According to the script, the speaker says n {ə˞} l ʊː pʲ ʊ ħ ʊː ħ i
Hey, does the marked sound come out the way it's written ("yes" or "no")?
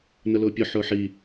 no